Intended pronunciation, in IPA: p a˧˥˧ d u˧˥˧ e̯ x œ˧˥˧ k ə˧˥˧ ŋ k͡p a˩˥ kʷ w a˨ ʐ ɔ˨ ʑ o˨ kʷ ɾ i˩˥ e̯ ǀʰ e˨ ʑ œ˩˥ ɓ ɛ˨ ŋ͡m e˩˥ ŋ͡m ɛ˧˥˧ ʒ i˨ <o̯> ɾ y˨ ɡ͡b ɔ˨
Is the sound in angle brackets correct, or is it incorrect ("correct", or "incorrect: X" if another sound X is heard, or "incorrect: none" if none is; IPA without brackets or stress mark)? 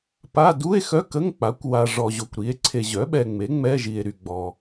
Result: incorrect: e̯